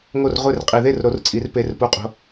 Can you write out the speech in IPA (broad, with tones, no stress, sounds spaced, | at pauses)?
ŋ o˥˩ r ʁʷ e˥˩ r qʼ i˨˩˦ ð e˥˩ r ɾ o˨˩˦ r t͡sʼ i˨˩˦ r p e˩˧˩ r p u˨˩˦ qʼ o̤˩˧˩